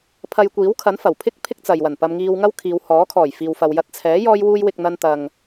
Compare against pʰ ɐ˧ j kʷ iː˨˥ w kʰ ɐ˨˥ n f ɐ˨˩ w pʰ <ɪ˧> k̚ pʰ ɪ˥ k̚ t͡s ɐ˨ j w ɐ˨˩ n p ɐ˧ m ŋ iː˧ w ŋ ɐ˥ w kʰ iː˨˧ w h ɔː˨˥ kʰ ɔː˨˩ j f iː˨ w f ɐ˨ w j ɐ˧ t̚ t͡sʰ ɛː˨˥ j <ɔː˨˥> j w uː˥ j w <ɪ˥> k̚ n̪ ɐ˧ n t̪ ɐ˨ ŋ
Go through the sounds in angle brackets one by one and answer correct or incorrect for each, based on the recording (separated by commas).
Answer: incorrect, incorrect, incorrect